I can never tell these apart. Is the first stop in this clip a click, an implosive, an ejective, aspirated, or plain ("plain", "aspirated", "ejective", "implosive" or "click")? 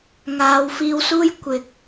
plain